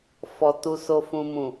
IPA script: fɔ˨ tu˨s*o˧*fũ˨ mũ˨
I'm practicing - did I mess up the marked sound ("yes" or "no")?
yes